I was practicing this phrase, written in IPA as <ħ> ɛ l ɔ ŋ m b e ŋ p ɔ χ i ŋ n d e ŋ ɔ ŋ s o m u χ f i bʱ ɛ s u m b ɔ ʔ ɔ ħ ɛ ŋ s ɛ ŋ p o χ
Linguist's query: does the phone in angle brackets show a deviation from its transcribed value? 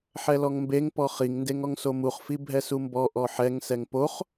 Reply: no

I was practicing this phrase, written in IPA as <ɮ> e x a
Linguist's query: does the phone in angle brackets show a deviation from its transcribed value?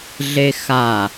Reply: no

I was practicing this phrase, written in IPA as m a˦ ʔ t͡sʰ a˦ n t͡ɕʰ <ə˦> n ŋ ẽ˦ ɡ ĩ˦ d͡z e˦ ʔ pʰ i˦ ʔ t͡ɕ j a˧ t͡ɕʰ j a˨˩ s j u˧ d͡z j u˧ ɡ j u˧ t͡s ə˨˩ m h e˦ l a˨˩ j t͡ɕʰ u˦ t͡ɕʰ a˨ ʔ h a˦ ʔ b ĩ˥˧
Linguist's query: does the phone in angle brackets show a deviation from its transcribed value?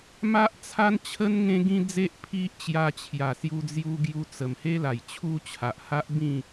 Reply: no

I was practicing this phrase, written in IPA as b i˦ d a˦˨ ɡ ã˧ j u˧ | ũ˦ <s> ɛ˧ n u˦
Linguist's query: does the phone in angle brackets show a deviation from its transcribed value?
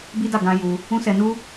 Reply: no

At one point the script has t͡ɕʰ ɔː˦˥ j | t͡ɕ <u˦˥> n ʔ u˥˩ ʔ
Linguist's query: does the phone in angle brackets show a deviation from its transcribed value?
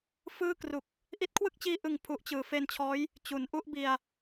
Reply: yes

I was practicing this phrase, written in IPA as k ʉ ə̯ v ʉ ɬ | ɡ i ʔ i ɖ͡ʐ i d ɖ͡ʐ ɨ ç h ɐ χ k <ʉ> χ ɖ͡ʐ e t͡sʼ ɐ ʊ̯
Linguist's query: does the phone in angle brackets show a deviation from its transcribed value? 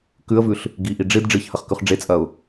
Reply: no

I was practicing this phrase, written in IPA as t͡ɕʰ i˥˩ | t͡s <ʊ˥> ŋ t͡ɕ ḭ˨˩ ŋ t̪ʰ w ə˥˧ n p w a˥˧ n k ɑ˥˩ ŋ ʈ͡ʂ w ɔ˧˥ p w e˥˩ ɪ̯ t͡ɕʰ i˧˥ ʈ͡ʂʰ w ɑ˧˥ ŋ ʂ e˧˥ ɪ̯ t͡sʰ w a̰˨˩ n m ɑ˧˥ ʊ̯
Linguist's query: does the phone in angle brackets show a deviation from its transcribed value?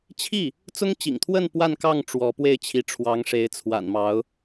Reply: no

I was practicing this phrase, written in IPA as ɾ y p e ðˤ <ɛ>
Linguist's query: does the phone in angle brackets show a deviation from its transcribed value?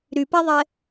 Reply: no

